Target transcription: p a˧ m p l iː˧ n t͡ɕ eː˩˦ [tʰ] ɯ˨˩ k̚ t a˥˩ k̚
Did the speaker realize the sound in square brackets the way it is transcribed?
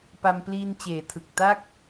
yes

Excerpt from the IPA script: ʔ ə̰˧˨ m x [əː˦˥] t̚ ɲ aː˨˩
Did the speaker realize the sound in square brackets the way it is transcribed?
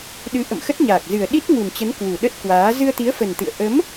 no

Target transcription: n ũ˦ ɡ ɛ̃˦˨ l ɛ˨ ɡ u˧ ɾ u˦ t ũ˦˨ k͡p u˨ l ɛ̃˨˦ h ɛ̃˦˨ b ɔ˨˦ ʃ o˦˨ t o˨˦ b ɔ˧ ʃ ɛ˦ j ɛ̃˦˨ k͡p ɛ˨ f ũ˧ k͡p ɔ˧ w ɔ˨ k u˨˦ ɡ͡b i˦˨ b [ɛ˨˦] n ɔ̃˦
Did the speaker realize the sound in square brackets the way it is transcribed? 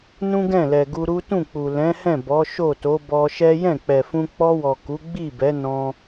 yes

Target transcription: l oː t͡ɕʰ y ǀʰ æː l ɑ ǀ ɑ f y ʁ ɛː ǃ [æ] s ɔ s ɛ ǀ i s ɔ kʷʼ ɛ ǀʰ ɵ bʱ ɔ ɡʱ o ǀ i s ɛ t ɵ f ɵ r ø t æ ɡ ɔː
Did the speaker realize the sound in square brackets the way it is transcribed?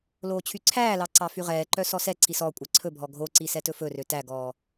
no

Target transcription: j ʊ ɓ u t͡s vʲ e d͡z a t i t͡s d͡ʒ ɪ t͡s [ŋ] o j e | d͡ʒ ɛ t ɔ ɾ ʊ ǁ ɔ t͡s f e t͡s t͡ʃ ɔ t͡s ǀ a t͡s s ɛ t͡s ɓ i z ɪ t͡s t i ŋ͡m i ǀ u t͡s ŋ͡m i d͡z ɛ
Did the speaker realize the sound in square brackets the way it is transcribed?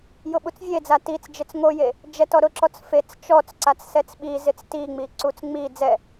yes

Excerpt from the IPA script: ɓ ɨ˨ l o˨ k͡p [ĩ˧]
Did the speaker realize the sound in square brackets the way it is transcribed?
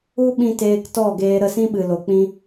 yes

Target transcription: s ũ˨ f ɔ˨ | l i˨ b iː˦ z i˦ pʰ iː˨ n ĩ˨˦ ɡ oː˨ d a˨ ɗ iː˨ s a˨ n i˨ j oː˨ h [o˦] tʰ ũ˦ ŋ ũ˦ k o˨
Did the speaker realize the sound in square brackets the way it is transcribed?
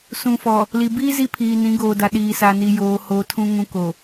no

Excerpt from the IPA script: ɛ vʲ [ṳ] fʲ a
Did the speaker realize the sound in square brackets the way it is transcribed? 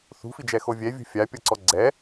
yes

